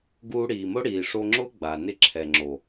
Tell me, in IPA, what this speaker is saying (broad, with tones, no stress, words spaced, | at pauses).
ɡuː˧ɽiː˨mʊ˦ ɽiː˨ʂo˧ŋ͡ǁʊː˦ ɡ͡ba˨nɪ˦ ǁʰɛ˨ŋ͡ǁo˨